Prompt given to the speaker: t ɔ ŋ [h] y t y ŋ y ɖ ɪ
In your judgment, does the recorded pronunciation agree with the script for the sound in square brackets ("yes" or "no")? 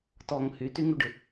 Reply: yes